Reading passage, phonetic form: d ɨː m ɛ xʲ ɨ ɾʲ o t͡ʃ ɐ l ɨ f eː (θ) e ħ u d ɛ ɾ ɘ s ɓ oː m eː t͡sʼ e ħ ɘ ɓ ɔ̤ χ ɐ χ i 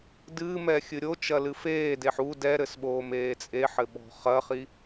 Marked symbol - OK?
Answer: no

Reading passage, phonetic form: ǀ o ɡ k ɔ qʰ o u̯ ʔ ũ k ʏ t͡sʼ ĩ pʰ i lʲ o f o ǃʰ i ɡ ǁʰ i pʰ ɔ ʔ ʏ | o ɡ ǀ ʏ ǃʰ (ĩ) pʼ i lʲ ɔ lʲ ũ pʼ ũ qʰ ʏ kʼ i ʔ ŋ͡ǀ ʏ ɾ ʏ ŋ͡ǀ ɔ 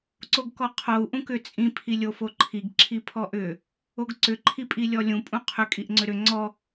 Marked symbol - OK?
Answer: no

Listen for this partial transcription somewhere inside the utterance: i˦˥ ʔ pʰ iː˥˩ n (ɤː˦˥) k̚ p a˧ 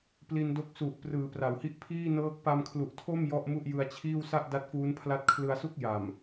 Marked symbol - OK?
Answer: yes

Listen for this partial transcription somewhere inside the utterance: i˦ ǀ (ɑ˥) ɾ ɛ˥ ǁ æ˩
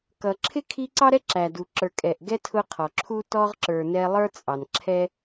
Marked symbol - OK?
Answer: yes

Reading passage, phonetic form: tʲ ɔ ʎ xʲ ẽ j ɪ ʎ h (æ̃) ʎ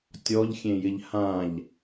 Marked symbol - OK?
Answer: no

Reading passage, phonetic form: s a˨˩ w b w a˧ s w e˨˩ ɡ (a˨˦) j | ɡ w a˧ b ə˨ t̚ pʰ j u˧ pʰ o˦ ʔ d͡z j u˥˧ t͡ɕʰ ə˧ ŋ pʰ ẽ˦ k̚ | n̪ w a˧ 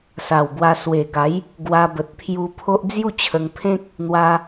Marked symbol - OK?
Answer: yes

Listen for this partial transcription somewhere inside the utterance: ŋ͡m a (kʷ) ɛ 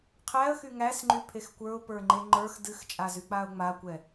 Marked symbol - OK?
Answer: yes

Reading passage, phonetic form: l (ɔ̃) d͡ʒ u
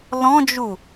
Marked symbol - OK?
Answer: yes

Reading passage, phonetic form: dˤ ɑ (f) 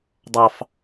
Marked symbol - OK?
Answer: yes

